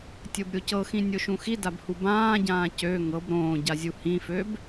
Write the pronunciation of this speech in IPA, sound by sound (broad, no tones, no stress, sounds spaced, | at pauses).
tʲ o b ɾʲ o c ɤ x ĩ nʲ o ʃ ũ x i d a b h u b ãː ɟ ãː c ø ŋ ɤ b ɾ õː ɟ a zʲ u h ĩ f ø b